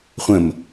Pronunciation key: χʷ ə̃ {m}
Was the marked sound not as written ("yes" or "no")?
no